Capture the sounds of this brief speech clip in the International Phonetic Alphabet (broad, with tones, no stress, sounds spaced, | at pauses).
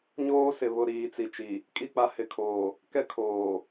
ɲ oː˦ s ɪ˨ β ʊ˨ ɾ iː˨ t͡s i˨ t͡ʃ i˨ | kʼ i˦˨ k͡p a˦ h ɪ˨ kʰ oː˨ | k ɛ˦ kʰ oː˨